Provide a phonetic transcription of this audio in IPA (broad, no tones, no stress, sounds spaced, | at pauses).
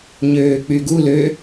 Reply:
ɲ øː k͡p y ɡ u l ø